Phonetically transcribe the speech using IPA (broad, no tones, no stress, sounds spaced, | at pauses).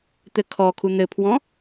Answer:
t̪ ɘ kʰ ɔ kʰ u n̪ ɘ pʰ w ɔ̃